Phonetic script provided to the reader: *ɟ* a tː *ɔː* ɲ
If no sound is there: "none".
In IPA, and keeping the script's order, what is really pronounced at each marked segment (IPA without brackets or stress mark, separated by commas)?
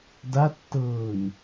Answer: d, ɤː